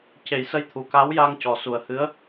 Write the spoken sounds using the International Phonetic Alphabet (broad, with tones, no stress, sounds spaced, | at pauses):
c e˨˩˦ j s ə˧˥ j t̪ʰ u˨˩ k a˧˥ w j a˧ ŋ c ɔ˨˩ s u˨˩ ə̯ h ɨ˧˥ ə̯